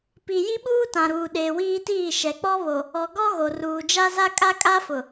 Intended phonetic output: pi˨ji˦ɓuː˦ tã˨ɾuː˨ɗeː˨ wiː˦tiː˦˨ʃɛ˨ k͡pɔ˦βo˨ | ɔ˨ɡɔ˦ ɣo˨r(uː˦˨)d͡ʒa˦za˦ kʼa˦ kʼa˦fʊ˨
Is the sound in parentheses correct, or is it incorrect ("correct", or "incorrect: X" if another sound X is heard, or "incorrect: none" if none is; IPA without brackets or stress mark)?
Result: incorrect: uː˨